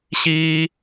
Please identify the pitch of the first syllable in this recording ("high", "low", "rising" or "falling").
low